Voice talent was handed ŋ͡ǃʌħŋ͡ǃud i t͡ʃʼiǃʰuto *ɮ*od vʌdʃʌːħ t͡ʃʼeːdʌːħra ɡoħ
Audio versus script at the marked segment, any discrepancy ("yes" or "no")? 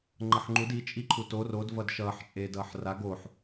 yes